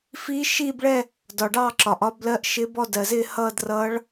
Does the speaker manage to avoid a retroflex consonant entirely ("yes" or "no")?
no